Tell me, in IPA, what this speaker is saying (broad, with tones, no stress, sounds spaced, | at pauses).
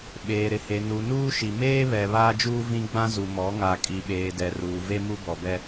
ɓ eː˨ ɾ ɪ˨ h e˨ n u˨ n uː˦ ʃ i˨ m eː˦ β ɛ˨ β aː˦ d͡ʒ uː˦ v ĩ˦ ɡ͡b ã˦ z u˨ m ɔ˨˦ ŋ a˨ kʼ i˨ ɓ eː˨ d ɛ˨ r uː˨ v e˦ m u˦ b ɔ˨ b ɛ˦